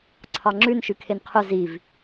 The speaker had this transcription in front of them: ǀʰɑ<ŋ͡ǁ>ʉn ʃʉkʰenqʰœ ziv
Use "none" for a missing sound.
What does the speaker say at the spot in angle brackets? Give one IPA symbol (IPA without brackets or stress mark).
ŋ͡ǁ